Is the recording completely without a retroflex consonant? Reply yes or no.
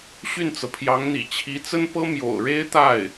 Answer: no